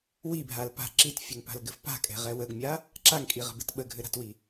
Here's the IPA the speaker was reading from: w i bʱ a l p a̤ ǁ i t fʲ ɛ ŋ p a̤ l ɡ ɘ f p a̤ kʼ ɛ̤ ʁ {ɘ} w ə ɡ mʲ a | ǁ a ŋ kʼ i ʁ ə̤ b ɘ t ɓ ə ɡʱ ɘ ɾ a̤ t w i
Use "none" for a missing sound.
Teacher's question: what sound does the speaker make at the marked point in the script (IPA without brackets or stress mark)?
ɛ